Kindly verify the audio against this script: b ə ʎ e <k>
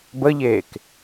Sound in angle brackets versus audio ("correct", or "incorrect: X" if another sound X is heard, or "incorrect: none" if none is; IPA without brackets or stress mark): correct